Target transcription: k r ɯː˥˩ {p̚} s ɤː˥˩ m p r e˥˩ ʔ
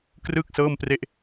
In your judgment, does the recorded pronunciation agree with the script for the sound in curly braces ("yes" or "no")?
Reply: no